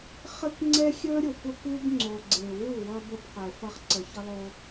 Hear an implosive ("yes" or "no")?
no